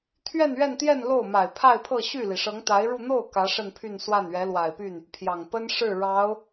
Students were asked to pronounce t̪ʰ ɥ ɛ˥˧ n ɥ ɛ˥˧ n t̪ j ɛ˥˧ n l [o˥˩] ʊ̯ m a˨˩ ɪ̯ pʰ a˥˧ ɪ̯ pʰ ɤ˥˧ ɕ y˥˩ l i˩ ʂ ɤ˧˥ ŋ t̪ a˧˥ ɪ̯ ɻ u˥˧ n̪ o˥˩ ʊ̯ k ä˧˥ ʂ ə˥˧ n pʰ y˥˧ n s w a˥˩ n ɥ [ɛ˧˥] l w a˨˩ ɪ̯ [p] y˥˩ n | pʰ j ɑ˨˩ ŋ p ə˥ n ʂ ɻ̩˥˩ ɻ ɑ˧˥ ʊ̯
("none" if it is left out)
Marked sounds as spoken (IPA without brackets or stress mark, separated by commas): o˥˩, ɛ˧˥, p